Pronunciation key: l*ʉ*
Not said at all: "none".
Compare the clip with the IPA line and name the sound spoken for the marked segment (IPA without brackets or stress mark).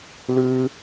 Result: ʉ